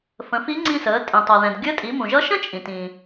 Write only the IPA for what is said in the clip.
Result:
fə̃˩˧fi˧˥ŋ͡ǀĩ˧səː˩˧ tʼĩ˩tˤʌ˩ðɛ̃˩d ɡʲəː˧˥tʼi˩˧ mũ˩ʒʌ˧˥ʃə̃˥ t͡ʃʼĩ˩tĩ˩

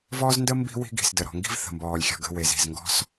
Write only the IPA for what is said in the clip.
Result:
vɔː˦zndə˦ mbi̤˦wi̤˦ɡi̤˨s də˨ɾɔ̤˨ŋɡi̤˦v θə̤˨mbɔː˨lʲxʲɔ̤˨ ɡə̤˦˨ we˨zi̤˨z ŋɡɔ̤˦s

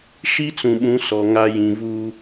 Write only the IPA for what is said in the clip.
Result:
ʃi˦t͡sũ˨ɓũ˨˦ sɔ˨ŋa˦ jĩ˨vuː˦

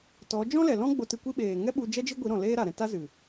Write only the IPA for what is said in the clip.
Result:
tɔ˨˦ d͡ʒɔ̃˦lɛ˨lɔ̃˦ ɡ͡bo˧tɨ˧kʷi˦ ɓeː˨ ŋɛ˦ɓu˧d͡ʒɛ˦ d͡ʒi˦ɡʷi˨˦ɾɔ̃˨ leː˦ɾa˨ɾɛ̃˧ ta˦zɨ˨

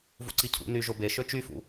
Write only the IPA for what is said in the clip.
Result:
vṵǀicʰṵ ny ʒobe ʃøt͡ʃyfṵ

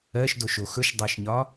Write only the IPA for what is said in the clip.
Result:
ɜʃdoʃo xɵʃdˤɜʃɲɒ

